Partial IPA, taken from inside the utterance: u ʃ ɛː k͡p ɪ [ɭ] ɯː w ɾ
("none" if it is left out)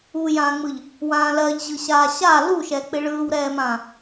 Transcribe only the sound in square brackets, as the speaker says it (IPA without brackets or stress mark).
ɭ